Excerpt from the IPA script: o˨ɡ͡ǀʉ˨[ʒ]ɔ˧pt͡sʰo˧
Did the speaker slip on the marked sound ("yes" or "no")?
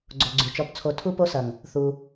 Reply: yes